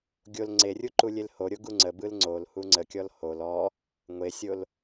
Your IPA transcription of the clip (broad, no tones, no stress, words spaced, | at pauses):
ɡʲol ŋ͡ǀerʲu ǃulʲelhoɾʲo ɡuŋ͡ǀəbɯl ŋ͡ǀolhu ŋ͡ǀəkʲɔl hol ɔ | ŋʷesʲol